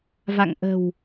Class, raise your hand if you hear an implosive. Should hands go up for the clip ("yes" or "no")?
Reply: no